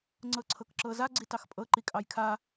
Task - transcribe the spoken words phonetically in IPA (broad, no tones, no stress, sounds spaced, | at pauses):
ŋ͡ǀ ɤ ǀʰ ɤ k ǁ ɤ z a ɡ͡ǀ i t ɑ x pʼ ɤ ǃ i kʼ ɑ j kʰ a